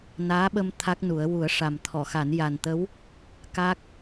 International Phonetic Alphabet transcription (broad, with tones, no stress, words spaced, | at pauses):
naː˧˥ɓə˧m t̪ʰa˦˥k̚nu˨˩˦ə̯ wu˨˩˦ə̯ʂa˨˩m t̪ʰɔ˨˩˨xa˨˩˦n ja˨˩nt̪ə˧˥w | ka˦˥k̚